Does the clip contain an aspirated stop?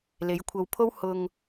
yes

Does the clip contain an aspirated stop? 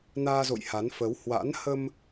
no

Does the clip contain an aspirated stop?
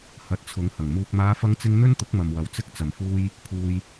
yes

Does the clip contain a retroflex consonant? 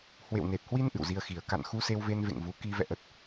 no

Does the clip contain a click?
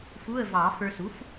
no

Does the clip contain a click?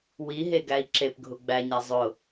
yes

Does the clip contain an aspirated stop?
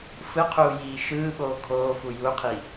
yes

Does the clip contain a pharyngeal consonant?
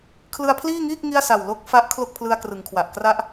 no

